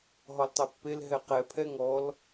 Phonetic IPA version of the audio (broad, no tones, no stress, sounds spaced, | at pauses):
ɦ ɔ l tˤ e pː e l ɦ ɛ q ɛ pʰ ɛ ŋ ɔ l